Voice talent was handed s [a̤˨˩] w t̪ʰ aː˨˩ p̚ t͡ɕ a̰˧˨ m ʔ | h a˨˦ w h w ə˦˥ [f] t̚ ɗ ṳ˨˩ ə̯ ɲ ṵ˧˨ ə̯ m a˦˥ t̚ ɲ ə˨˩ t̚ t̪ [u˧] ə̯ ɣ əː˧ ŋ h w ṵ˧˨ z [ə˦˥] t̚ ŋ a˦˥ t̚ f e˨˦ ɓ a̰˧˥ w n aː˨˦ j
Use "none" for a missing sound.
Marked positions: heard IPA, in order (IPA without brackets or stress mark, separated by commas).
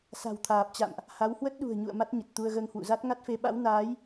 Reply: a̤˨˩, none, u˧, a˦˥